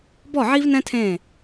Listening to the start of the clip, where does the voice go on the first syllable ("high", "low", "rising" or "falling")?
falling